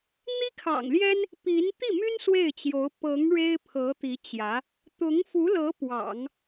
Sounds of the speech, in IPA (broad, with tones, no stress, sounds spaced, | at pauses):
n̪ i˥ kʰ ɑ̰˨˩ ŋ l j ɛ˥ n | p i˧˥ n t̪ i˥˩ m y˥ n s w e˥˩ ɪ̯ t͡ɕ j o˧˥ ʊ̯ p ɤ˧˥ ŋ ɻ e˥ ɪ̯ pʰ ɤ˧˥ t̪ i˧˥ t͡ɕ j ä˧˥ | t̪ ʊ˧˥ ŋ f u˧˥ l ɤ˧˥ p w ɑ̰˨˩˦ ŋ